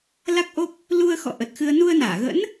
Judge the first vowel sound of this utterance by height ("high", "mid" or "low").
low